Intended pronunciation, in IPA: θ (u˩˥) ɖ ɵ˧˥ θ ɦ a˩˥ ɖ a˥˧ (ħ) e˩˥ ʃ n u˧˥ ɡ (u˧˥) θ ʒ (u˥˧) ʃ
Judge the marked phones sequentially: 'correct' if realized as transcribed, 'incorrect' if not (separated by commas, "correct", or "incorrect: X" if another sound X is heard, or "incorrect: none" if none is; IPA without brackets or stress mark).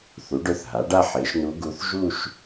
correct, correct, correct, correct